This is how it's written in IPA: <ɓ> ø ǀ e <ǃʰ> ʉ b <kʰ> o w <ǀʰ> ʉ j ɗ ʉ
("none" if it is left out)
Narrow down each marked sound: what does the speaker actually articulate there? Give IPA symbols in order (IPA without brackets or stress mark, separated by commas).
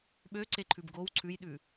ɓ, ǃʰ, ɡ, ǀʰ